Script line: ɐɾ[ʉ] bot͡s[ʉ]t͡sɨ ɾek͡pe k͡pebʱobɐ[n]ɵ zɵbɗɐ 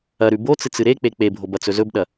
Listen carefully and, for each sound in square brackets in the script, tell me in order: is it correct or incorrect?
correct, incorrect: ɨ, incorrect: t͡s

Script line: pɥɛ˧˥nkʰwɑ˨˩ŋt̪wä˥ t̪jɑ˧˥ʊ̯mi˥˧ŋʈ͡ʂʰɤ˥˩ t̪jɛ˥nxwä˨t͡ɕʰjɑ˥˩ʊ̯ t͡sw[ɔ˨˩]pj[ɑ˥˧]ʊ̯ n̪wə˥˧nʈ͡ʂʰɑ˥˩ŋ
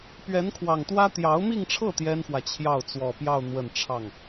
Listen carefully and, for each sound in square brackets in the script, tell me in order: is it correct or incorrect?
correct, correct

